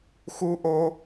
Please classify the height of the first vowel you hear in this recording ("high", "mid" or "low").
high